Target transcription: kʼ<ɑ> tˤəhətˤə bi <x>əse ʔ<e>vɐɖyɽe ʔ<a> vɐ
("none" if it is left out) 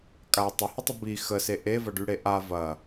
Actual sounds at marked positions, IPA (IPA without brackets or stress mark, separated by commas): a, x, e, a